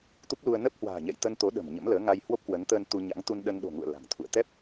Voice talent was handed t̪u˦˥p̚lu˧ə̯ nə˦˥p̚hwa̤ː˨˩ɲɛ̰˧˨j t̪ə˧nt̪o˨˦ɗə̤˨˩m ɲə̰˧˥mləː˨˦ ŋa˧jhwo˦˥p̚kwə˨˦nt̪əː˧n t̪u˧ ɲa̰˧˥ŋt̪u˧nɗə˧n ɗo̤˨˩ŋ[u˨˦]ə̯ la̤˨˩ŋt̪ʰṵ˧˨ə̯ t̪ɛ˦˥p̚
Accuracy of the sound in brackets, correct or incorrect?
incorrect: ṵ˧˨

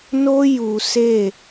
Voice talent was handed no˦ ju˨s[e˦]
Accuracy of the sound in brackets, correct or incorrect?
incorrect: e˦˨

